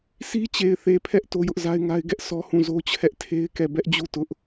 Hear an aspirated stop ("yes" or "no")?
yes